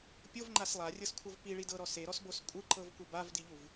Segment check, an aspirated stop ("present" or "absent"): present